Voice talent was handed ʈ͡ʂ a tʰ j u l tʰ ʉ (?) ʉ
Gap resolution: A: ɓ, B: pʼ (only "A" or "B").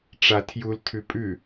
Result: B